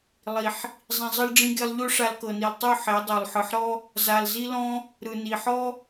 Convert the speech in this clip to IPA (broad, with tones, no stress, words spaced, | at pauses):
lˠi˨ħ | zˤĩ˨zˤɯ˧lɖ͡ʐĩ˧ɡe˧lˠ ʎo˦ʂa˧lkɤ˨ni˨lˠ tˤu˦˨ ħe˨˦dˤo˨lˠ ħɯ˨ħɾɔ˦ | za˨lzi˦lɔ̃˦ | ɾɯ˨ni˨ħɔ˦